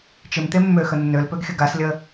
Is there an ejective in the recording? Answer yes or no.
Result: no